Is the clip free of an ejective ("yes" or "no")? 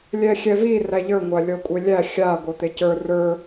no